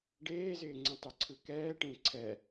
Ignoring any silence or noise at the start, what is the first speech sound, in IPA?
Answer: ɖ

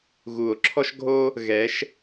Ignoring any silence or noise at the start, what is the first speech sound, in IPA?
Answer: ɣ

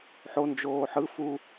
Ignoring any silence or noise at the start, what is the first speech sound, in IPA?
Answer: ħ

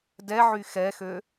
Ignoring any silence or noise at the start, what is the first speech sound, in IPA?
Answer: d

